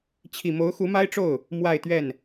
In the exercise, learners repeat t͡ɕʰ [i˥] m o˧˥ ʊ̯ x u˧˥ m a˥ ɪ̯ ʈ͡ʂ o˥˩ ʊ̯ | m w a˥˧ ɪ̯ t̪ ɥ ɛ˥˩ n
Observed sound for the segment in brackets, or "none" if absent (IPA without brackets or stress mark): i˨˩